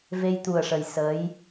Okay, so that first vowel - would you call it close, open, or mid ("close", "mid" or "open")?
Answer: mid